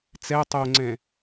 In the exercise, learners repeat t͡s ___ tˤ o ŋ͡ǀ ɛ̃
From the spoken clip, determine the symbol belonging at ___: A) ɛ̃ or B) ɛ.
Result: B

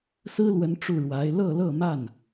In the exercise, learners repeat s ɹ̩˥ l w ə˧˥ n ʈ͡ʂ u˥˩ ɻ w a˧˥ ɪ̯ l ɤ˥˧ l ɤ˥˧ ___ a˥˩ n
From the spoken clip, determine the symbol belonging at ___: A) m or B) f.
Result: A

